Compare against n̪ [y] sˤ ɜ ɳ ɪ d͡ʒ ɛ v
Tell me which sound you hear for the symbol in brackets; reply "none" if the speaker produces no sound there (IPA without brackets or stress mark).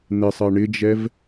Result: ɪ